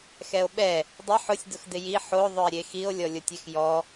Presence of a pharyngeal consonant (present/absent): present